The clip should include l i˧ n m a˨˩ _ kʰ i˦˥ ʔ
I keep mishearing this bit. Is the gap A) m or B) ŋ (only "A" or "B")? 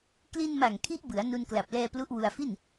B